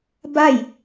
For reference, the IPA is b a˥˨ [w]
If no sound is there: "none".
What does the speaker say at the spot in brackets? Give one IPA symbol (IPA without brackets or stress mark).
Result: j